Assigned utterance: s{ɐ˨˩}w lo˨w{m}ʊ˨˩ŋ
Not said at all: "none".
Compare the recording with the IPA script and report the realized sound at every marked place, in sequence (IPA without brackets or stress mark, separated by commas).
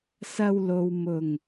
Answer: ɐ˧, m